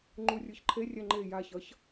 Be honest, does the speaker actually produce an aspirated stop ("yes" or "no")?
yes